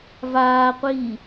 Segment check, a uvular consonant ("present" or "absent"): present